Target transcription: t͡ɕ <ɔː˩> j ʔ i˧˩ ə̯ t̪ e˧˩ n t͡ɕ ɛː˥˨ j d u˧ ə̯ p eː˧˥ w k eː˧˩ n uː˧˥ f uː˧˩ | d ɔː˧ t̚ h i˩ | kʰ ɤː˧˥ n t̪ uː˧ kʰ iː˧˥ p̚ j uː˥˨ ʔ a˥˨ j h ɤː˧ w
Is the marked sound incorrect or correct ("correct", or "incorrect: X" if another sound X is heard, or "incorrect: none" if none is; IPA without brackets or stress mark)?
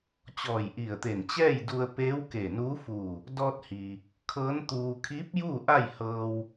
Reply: incorrect: ɔː˧˩